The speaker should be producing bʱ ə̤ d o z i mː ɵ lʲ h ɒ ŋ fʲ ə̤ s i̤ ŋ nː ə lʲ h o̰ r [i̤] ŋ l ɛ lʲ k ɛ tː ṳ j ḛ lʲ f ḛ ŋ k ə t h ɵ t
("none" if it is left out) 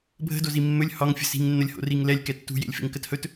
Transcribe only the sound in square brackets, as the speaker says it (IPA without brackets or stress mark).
i